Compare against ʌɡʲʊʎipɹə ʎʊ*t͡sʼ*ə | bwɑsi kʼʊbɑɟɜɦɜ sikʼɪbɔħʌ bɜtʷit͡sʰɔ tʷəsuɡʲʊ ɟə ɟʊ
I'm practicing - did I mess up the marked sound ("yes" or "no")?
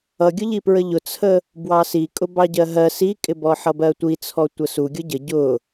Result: yes